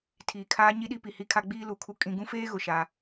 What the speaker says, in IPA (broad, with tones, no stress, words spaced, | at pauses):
tʰiː˨kʰaː˦ɲi˦ɗi˦ pi˨hi˦kʰa˦ ɡ͡biː˦lu˨kʰu˦ kʼĩ˦ ɡũ˦feː˦ɣʊ˨ ʃa˦